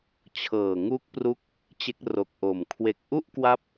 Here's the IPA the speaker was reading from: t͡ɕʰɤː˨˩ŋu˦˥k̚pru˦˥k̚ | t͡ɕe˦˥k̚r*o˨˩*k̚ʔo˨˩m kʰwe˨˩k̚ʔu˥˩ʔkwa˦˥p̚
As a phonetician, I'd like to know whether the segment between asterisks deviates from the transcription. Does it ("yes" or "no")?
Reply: no